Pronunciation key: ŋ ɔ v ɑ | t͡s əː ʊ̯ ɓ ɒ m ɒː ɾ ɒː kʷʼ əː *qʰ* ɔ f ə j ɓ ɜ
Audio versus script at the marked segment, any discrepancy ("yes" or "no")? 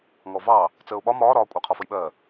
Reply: no